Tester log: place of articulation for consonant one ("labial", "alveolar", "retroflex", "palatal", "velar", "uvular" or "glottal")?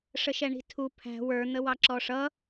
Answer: retroflex